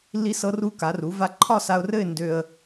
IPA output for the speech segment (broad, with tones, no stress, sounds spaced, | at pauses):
lː i˧ s ɤ˧ r u˧ k a˩˧ r u˩˧ v a˧ ǃʰ ɒ˥˧ s a˧ ʊ̯ r ɘ˥˧ ɪ̯ n d ø˧ ə̯